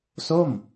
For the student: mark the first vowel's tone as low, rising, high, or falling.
falling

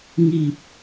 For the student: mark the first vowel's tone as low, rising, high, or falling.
low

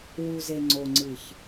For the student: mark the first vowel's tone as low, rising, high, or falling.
low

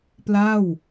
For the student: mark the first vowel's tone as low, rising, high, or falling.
falling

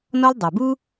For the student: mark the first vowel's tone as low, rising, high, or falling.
high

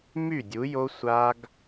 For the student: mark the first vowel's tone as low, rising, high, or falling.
falling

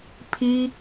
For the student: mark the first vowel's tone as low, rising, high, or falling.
high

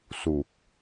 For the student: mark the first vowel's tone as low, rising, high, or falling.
low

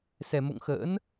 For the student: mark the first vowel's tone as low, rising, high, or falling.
low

